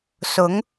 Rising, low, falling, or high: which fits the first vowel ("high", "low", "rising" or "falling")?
rising